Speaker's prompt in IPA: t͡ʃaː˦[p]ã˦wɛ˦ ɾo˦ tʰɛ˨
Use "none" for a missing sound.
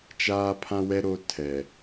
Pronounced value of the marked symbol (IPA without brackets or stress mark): pʰ